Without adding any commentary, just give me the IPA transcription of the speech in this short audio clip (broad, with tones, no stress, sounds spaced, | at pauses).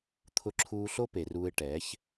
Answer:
t̪ʰ ʊ˧ ǁʰ uː˧ ɬ o˦ p e˨ r uː˧ ɪ̯ ʈ ɛː˨˦ ç